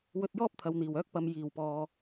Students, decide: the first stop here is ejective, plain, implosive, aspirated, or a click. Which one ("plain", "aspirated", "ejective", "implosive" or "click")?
plain